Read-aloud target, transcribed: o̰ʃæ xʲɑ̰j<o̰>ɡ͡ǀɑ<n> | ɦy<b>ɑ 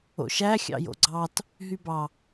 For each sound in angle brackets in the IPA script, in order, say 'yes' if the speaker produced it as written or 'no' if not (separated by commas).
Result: yes, no, yes